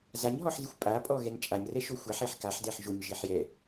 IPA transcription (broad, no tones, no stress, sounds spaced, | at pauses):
z a ɲ ɦ ɔ ħ z ɪ xʷ pʼ a pʼ ɔ ɣ ɛ n t͡ʃʼ a ɲ r ɛ ʃ o xʷ a ħ e ħ k a ħ d ɛ ħ ʒ o ɲ ʒ e ħ j ɛ